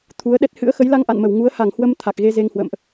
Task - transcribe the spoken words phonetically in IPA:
t̪ʰu˨˦ə̯ɗɛ˦˥t̚ hɨ̰˧˥ə̯xə˨˦jla˧ŋ ʔa̰˧˨nmə˧˩w ŋu˨˦ə̯ha˧˩ŋhwə˧m t̪ʰa˨˩k̚ɣe˧ze˧ŋhwə̰ː˧˨mʔ

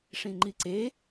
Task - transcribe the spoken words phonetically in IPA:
ʂĩŋ͡ǃiǀe

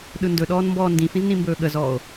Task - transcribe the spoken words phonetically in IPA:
ɗɯndɵɗɔːn mbɔːndĩfĩz nĩmbɵːɠəzɔːo̯

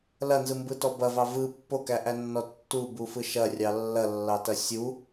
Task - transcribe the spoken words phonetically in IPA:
lɐnzɯmbɯtɔ bɐvɑ vɯ pːokæʔænːɔ tːubufɯ ʃɐrʲɑ lːɐlːɑtɐ sʲu

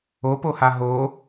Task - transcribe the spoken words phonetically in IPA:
opoha ɦo

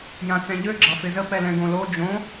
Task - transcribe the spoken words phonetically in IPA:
jãt͡sɛ̃ʎø ɡ͡ǁɑfɪzə pɛlɛ̃ɡõlo d͡ʒõ

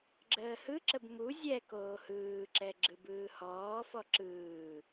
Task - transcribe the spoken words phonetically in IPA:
ɡ͡ǁəːhɯǁəb mu zʲɛ koːhɯːǁɛ ɡ͡ǁɯbɯːhɔːfɔ ǁɯː

